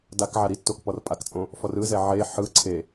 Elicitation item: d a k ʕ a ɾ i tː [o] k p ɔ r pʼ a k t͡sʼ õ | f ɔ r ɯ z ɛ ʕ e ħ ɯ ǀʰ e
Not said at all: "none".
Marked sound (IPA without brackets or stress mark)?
o